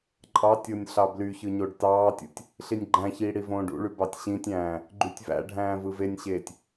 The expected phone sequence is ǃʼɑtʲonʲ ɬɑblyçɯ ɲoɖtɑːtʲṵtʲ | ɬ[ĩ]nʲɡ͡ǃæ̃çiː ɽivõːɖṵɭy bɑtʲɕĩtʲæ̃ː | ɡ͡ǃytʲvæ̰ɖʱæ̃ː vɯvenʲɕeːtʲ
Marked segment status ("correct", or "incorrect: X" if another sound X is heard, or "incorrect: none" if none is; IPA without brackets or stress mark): incorrect: i